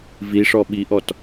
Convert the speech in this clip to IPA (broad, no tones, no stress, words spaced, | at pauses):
viʂɔ ɓiʔɔt